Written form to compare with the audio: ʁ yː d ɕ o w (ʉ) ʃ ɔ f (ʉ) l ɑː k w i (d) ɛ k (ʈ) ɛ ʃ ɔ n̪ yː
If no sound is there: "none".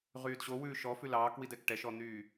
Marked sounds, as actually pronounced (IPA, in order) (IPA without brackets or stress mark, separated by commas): ʉː, ʉ, d, ʈ